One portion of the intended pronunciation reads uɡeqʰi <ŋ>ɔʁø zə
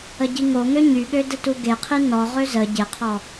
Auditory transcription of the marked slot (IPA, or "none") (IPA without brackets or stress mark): n